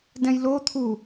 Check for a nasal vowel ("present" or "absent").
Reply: present